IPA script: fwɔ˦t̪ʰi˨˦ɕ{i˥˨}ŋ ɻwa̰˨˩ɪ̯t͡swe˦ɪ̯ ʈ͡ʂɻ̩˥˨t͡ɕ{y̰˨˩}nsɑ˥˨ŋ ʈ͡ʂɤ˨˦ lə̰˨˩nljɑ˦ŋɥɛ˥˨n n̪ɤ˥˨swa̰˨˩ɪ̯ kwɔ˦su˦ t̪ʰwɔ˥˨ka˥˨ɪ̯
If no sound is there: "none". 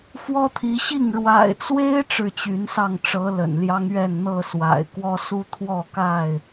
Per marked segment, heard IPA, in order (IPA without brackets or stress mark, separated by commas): i˥˨, y˨˦